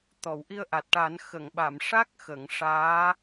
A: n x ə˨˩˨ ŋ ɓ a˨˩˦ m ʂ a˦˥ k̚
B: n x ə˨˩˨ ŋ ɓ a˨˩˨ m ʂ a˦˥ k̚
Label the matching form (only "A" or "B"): B